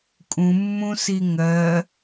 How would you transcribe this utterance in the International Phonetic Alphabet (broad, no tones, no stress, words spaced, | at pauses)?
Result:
kʼũmːũsi ŋɜ